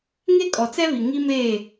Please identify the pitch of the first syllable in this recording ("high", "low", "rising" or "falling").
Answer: high